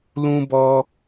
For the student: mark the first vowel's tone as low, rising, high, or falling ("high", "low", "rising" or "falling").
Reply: high